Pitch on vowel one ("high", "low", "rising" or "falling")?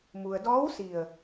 low